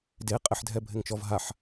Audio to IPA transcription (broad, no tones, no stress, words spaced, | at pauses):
de qʼɪħdʱɛbʱɪŋt͡ʃɔv ɦaħ